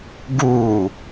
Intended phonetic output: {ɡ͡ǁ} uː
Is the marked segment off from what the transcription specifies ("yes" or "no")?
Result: yes